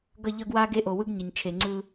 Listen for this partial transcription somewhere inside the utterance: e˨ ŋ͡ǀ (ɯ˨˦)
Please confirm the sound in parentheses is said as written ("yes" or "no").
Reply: no